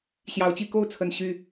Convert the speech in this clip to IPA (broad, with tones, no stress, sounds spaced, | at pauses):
ɕ j ɑ˧˥ ʊ̯ t͡ɕ i˥˧ k o˥˩ ʊ̯ t͡sʰ ə˨˩ n ɕ y˥˩